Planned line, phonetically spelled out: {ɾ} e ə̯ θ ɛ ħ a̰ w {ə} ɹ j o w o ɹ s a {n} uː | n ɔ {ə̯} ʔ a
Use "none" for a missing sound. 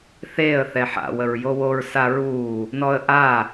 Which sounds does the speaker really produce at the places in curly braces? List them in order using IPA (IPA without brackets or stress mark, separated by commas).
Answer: θ, ə, ɹ, ə̯